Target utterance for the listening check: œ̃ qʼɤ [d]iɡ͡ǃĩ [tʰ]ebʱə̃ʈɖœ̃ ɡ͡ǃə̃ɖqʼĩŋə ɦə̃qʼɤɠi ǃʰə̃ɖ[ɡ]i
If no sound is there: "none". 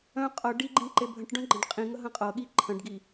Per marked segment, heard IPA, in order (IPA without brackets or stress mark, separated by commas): ɖ, ǃ, ɡ